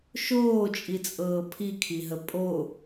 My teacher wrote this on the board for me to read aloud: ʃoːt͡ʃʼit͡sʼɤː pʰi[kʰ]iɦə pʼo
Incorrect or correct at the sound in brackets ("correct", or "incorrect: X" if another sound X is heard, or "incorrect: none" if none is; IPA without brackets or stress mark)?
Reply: correct